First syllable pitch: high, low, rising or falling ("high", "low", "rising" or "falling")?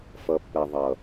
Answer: low